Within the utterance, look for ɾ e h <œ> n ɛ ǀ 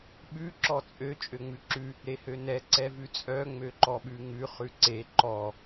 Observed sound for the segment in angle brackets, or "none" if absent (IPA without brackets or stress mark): ø